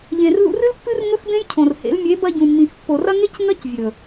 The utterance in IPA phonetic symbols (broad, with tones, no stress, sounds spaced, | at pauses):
ʎ ẽ˨ r l ṵ˧ r ɨ˦ l pː ɨ˦ r ŋ ɵ˦ x b ẽ˦ j cʰ õ˨ r h ḛ˨˦ l mʲ e˨˦ b ɐ˧ ɟ ũ˨ mː ĩ˨ x pː o˨ r ɐ˦ ŋ e˦ c ŋ ɐ˦ c vʲ ɵ˨